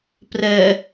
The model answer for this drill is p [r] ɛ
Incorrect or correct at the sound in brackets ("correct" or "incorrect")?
correct